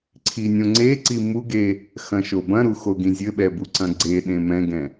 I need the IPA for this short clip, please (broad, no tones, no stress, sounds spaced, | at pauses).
ǀʰ i nʲ õ ŋ͡ǀ e ǀ i m u ɡ e | x ɐ̃ ʃ o b ɐ̃ ɾ u x o ɡ ĩ zʲ ɘ ɓ ɛ b u ǀ ɐ̃ ɡ͡ǀ e ɗ ẽ m ɛ̃ ɡ ɛ̃